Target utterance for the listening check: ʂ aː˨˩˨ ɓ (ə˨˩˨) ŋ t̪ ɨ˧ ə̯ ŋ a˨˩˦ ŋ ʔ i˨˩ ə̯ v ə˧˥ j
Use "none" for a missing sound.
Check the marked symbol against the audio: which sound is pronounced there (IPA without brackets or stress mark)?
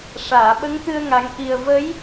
ə˧˥